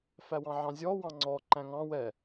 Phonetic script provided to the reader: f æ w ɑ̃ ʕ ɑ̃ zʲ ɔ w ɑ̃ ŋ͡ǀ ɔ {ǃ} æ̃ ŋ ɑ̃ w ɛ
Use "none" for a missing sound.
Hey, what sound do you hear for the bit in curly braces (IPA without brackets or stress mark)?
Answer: ǃ